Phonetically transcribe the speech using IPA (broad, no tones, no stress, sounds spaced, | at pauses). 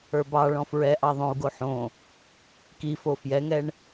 ə˞ b ɑ ɭ ɔ̃ f ɹ ɛ ʔ ɑ ðˤ õ u̯ ɡ o ħ õ | k i f o f j ɛ ŋ ɛ ɳ